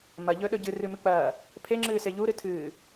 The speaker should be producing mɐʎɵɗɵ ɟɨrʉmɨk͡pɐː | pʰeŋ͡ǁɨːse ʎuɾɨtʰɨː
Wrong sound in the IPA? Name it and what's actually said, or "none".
none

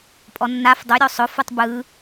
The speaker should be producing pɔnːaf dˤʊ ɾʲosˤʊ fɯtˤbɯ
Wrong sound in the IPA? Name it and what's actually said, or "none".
p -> pʼ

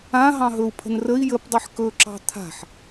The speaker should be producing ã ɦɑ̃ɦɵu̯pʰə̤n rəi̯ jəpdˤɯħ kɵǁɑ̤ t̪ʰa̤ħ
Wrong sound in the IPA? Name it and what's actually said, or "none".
none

